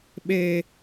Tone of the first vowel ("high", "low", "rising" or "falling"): high